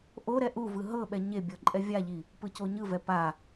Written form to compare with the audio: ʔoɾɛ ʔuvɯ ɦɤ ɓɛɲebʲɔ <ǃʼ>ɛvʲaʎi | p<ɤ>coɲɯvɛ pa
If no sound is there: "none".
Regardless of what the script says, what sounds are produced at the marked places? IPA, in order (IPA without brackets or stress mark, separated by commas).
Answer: ǃʼ, ɯ